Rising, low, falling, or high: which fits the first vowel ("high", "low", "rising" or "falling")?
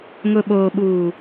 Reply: low